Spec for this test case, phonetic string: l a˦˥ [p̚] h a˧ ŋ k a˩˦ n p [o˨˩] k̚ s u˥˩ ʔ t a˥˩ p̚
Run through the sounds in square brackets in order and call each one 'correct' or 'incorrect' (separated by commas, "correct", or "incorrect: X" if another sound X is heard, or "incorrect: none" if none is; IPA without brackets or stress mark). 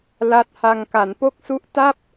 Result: incorrect: t̚, incorrect: o˥˩